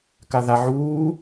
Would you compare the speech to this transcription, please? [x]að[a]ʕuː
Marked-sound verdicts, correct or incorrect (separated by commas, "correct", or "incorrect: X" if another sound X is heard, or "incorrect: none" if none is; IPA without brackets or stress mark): incorrect: k, correct